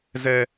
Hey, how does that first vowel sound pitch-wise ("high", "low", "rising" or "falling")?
high